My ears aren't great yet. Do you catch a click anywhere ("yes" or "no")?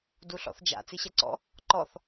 yes